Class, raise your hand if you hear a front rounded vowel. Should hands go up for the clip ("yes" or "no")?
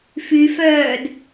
yes